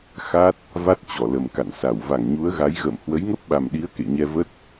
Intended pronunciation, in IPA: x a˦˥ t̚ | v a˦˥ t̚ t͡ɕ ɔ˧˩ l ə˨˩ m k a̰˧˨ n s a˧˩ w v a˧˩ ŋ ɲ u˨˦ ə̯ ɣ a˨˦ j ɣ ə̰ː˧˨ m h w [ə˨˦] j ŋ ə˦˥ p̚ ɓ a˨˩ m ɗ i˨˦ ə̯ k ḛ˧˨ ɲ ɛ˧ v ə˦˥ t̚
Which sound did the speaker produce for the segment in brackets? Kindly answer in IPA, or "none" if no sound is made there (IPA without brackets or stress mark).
ə˨˦